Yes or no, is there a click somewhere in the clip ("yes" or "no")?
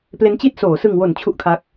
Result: no